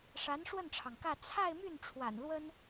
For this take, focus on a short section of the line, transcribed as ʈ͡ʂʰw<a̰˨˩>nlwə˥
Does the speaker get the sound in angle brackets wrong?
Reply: no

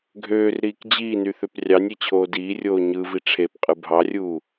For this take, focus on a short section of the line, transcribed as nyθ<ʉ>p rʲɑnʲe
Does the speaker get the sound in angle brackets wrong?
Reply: yes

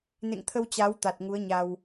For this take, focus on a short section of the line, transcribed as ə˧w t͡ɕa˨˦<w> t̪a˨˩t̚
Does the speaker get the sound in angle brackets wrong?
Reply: no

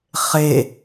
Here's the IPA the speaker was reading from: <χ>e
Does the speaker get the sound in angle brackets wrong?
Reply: no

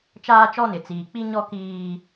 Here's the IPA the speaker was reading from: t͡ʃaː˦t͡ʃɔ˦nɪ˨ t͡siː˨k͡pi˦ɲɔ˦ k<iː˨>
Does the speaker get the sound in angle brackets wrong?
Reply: yes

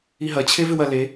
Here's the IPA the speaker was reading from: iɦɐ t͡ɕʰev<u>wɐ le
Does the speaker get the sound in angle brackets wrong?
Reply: yes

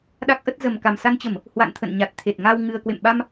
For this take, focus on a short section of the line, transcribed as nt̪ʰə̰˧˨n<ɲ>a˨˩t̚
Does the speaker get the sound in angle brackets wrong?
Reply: no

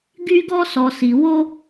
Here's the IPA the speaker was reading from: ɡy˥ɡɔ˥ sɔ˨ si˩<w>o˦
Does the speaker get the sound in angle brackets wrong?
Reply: no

